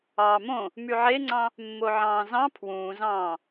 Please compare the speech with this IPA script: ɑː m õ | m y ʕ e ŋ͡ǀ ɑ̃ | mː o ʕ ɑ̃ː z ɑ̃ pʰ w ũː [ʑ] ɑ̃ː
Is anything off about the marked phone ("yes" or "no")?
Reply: yes